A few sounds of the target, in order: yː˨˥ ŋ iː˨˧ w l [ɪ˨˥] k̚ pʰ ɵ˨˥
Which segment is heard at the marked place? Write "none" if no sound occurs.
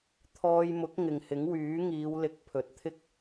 ɪ˨˥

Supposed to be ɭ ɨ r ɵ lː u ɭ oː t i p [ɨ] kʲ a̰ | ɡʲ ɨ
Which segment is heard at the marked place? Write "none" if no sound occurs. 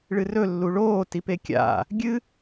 e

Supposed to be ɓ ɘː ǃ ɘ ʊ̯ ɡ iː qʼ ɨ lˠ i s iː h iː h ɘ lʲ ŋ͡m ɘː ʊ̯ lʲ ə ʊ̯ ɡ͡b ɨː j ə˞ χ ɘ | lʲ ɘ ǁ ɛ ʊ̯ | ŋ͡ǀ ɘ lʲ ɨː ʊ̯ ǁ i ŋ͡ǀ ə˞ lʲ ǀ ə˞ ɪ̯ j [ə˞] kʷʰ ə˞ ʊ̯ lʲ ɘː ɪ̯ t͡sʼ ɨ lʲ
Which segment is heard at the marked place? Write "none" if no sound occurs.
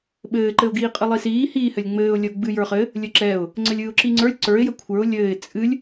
ə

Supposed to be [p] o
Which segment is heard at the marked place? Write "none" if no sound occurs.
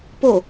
p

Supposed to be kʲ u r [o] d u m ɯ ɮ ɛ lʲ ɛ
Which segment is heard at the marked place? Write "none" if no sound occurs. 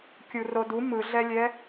o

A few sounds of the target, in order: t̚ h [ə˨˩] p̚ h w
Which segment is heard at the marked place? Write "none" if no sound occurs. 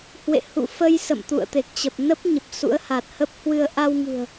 ə˦˥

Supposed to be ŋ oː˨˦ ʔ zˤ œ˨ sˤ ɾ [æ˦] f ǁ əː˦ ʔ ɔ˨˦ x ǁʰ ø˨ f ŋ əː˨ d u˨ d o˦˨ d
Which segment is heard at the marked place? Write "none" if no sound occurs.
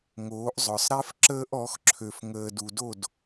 ɛ˦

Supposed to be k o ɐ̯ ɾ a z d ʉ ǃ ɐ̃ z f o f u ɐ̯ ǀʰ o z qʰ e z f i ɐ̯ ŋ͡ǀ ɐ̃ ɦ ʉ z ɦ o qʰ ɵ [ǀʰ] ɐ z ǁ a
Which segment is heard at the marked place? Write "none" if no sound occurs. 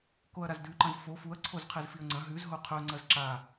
ŋ͡ǀ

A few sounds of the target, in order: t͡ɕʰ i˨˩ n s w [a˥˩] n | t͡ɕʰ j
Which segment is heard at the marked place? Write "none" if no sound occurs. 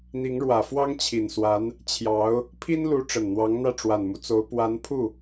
a˧˥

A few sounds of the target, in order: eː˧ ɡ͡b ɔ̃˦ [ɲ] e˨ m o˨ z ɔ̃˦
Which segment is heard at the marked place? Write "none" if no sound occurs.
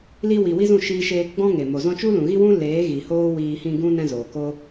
ŋ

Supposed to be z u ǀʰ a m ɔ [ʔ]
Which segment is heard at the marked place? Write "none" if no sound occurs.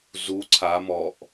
ʔ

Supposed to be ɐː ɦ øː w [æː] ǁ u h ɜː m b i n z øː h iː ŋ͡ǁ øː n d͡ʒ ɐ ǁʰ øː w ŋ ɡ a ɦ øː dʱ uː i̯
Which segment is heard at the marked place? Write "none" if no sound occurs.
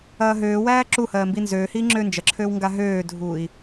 æː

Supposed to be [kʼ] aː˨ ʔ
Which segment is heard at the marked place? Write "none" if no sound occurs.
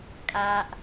kʼ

